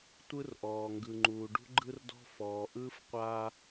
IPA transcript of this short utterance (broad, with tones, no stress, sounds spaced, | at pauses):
tʷ ɯ˦ r ʔ ɔː˨ ŋ ɡ ɯ˨ ŋ͡ǃ uː˨ ɖ ṳ˦ ɡ͡ǃ ɯ˦ r d ɔ̤˦ f ɔː˨ ʔ ɯː˦ f qʷ aː˦